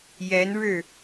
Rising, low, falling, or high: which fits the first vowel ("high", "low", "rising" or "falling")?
rising